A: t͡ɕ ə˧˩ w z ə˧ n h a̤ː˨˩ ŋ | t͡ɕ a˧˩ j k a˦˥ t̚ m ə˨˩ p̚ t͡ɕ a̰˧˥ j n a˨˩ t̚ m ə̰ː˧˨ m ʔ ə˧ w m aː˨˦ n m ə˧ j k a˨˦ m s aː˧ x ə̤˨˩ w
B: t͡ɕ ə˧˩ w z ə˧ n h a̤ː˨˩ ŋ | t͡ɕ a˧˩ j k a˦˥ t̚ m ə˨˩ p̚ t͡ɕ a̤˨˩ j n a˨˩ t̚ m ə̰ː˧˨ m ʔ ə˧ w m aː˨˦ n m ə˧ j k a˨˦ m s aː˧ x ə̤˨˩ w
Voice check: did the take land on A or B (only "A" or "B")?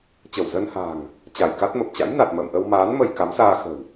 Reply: A